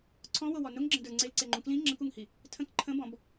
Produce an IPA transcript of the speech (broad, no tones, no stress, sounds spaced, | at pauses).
ǀʰ ɔ̃ w o w ɔ n ʊ ŋ ɡ͡ǁ ə̃ d ə˞ ŋ͡ǀ e l ǀ e ŋ͡ǃ ũ k l ĩ ŋ͡ǁ ə̃ k u ŋ h i | tʰ ə̃ k ǃʰ ə̃ b ɔ̃ b